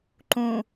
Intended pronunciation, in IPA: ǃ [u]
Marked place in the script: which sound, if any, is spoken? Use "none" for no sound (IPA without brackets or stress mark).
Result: ũ